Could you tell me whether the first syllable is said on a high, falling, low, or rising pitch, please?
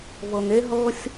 low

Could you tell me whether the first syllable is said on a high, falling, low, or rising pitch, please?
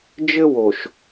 high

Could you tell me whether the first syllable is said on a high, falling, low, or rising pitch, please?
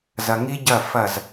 low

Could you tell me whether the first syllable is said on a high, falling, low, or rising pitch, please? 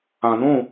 low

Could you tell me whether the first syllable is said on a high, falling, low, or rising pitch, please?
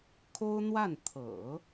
high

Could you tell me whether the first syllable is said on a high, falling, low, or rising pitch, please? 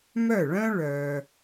falling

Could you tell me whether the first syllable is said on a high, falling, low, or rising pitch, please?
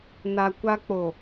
low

